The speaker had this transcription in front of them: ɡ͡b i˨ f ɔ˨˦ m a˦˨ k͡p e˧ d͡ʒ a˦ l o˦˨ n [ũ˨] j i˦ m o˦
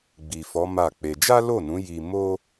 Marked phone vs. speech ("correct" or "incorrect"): incorrect